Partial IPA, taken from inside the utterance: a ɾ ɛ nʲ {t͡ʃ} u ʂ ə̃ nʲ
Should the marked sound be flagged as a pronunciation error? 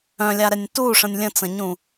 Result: yes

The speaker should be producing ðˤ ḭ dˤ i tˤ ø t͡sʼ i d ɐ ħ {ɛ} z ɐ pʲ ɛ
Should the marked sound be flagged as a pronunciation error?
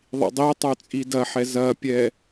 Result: no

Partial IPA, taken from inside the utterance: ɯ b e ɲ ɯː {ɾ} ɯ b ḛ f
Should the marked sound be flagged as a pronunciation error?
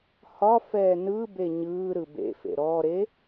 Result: no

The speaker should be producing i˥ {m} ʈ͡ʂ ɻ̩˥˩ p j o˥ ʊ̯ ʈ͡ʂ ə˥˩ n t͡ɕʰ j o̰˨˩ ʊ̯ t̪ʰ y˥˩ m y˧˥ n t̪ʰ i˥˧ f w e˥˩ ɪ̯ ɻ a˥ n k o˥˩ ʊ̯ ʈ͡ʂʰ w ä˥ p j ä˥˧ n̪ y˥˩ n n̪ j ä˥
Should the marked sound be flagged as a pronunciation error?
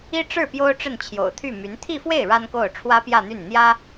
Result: yes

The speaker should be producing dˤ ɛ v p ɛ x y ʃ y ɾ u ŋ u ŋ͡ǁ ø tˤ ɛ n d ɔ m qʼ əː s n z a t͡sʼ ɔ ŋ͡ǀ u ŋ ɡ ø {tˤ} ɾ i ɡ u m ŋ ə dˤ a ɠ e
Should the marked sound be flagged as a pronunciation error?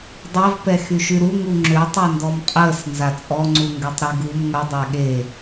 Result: no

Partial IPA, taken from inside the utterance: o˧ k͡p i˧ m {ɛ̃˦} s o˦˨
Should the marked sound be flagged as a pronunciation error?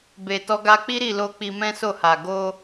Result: no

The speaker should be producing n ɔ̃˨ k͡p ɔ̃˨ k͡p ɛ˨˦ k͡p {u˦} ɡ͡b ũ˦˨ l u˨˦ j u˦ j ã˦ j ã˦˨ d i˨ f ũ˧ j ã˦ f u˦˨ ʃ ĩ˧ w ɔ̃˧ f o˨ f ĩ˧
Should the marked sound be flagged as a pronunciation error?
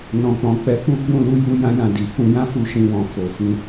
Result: no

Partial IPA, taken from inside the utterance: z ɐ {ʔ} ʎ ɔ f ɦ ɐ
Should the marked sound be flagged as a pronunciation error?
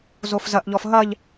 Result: no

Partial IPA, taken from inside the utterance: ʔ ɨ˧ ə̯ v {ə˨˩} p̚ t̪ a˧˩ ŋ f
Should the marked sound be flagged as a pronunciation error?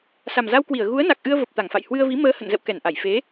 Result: no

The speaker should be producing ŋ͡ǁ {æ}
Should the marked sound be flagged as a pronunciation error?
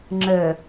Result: yes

